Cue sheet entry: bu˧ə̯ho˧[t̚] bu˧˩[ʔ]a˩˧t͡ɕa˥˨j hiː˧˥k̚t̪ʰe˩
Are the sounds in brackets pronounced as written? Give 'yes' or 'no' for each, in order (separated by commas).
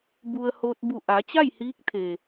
yes, yes